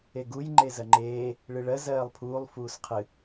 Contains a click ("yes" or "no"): yes